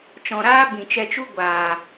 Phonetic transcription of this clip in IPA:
t͡ʃɔ̃˨ɾaː˦ bĩ˨t͡ʃɛ˧t͡ʃu˦ ɡʷaː˨

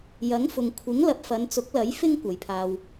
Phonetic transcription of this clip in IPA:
jɐ˨˥ŋfʊ˨ŋ kʷʰɪ˨˥ŋ lɐ˨p̚fɐ˨˧nt͡sʊ˨˥k̚lɐ˨˥j fɪ˥ŋ kʷɐ˨jpʰaː˧w

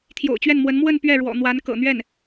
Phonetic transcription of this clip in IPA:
t̪ʰjo̰˨˩ʊ̯t͡ɕɥɛ˥˩nmwə˧˥n mwə˥˧n pɥɛ˥˩ɻwɔ̰˨˩ n̪wa˧˥n kɤ̰˨˩ n̪ɥɛ˥˩n

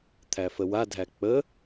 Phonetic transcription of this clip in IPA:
t̪ʰæfəwadʱæ k͡pə

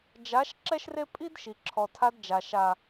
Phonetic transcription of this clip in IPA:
d͡ʒa˨˦ʃ ǁɛ˦ʃre˦ pʼi˦dʃi˨ ǁʰɔ˨tʰa˧dd͡ʒa˨ ʃa˨

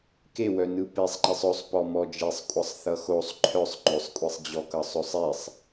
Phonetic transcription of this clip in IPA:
kewœnɯ pesˤŋ͡ǃesˤ ɵsˤpɔ mɔd͡ʒesˤkʷʼʌsˤ θʌxosˤ ǃʰœsˤ ŋ͡ǃɵsˤkʷʼesˤd͡ʑɔkʌ sˤɵsˤesˤ

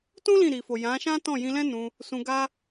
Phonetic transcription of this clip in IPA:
tũ˦ lĩ˦˨ ɾi˨fo˨ jã˨˦ʃã˦tɔ̃˦˨ jĩ˧lɛ̃˦nũ˧ | sũ˧ɡa˦

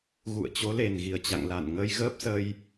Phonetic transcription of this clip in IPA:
ɣṵ˧˨ə̯t͡ɕo˨˦le˨˩n ɣi˨˩ə̯t͡ɕa̰˧˨ŋla˧˩n ŋə˧jɣəː˦˥p̚sə˧j

